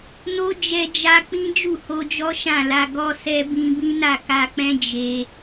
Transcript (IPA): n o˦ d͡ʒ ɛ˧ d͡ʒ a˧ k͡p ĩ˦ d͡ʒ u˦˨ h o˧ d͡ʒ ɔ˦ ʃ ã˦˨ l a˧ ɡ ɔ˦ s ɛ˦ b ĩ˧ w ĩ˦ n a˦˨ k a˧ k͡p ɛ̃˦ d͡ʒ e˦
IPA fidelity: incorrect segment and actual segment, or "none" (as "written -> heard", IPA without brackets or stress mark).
w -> b